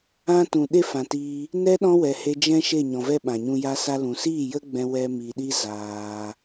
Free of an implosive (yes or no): no